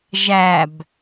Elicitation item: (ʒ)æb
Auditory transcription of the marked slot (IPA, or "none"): ʒ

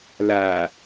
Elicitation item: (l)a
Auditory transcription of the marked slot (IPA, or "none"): l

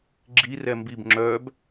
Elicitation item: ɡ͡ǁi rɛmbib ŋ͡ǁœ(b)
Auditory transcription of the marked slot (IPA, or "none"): b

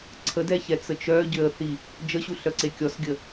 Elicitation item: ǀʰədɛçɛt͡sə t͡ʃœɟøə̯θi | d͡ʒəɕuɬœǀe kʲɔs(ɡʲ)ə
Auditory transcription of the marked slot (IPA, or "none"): ɡʲ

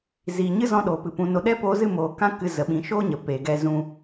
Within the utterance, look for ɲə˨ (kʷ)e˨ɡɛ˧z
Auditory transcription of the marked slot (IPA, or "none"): p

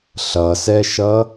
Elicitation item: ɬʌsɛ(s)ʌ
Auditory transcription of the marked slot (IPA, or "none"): ʃ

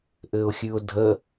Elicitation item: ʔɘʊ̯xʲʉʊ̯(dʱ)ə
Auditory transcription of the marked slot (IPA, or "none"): dʱ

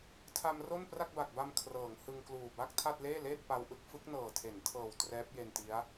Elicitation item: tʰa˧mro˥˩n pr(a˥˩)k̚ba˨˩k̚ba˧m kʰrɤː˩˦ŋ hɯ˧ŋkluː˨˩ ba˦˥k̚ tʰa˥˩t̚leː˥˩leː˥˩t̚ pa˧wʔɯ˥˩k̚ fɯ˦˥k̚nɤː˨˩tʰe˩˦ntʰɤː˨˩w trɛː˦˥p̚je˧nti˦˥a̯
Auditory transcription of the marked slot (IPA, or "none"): a˥˩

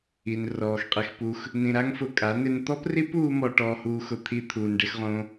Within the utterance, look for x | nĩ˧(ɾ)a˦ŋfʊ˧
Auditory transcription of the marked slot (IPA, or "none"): ɾ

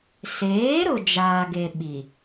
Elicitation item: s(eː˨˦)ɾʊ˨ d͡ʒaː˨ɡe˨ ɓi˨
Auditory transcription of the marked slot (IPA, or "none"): eː˨˦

